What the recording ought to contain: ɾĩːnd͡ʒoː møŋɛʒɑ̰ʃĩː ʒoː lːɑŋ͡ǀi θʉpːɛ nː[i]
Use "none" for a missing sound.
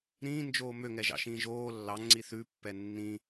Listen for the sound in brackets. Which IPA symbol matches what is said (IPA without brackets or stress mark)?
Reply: ĩ